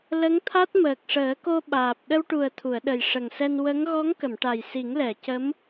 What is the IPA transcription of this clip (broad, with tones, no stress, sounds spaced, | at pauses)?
l ə˧˥ ŋ t̪ʰ a˦˥ t̚ m əː˨˩ k̚ ʂ əː˨˩˦ k o˧ ɓ aː˨˩ p̚ ɗ ə˧ w ʈ u˨˩ ə̯ t̪ʰ u˨˩˨ ə̯ ɗ ə˨˩ j ʂ ə˨˩ ŋ s ɛ˧ n w ə˧˥ ŋ ɣ ɔ˧˥ ŋ k ə˨˩˨ m ʈ a˨˩ j s i˨˩˦ ŋ l ɛ˨˩˨ c ə˧˥ m